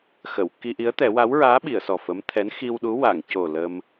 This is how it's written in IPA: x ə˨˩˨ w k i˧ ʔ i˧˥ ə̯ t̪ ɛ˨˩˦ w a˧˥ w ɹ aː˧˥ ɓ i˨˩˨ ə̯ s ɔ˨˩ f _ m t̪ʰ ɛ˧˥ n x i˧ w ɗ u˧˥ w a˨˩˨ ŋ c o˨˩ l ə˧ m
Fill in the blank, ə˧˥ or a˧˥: ə˧˥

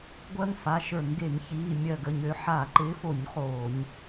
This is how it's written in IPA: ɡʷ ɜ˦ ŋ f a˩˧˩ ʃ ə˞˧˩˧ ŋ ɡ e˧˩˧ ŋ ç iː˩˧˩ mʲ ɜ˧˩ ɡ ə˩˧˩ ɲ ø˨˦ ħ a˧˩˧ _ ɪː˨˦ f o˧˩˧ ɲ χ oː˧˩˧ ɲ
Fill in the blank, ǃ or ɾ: ǃ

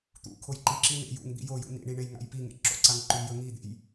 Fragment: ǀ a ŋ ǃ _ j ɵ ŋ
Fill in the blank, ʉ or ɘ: ʉ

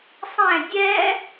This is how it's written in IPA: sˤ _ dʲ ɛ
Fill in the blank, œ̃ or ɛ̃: ɛ̃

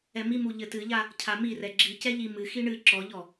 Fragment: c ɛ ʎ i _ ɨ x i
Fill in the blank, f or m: m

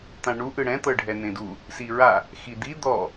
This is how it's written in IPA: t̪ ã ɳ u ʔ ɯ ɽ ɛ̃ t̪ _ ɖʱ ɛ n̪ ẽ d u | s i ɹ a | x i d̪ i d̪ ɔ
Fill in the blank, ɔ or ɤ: ɤ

